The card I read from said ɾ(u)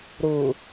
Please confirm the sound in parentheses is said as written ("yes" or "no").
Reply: yes